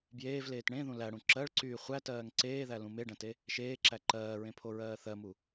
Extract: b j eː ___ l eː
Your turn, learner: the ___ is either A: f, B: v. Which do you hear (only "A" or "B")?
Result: B